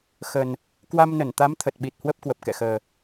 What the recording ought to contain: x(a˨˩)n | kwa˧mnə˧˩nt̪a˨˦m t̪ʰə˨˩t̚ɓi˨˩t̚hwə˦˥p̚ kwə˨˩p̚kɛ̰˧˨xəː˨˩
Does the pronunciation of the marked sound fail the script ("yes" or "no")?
yes